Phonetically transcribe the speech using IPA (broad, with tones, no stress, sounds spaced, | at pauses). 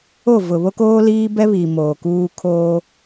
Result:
o˦˨ v ʊ˨ β o˦ k oː˦ l iː˦ b ɛ˦ β iː˨ m oː˨ k uː˦ kʰ oː˦